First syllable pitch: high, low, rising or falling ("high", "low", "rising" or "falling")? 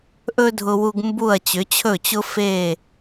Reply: high